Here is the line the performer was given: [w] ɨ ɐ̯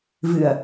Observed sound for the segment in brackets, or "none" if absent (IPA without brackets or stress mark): v